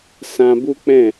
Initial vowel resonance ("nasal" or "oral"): nasal